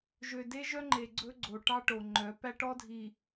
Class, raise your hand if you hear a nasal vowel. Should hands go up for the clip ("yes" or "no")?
no